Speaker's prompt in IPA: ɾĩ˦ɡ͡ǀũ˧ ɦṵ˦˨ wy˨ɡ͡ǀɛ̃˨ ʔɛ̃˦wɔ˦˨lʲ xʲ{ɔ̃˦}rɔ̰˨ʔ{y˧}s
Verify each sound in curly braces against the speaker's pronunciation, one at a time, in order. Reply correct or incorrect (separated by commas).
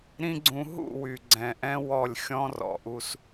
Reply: correct, incorrect